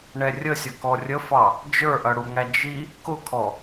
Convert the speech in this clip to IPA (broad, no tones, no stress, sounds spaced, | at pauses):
ɳ ɛ rʲ ə sʲ ʌ k ɔ rʲ ə f ɑ | d͡ʒ ə˞ ʔ ʌ ɽ u ŋ æ d͡ʒ i | k ʊ kʰ ɔ